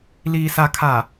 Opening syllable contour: low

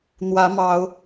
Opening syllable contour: rising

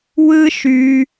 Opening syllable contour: high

